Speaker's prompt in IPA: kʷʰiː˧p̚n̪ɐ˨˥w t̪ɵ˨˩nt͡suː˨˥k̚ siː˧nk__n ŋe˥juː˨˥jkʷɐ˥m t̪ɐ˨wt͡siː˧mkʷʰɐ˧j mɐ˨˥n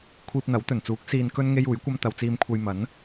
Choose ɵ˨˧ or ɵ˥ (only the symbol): ɵ˥